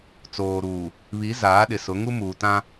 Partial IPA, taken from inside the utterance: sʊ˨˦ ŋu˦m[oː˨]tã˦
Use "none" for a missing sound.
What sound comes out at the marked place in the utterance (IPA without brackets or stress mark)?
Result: uː˨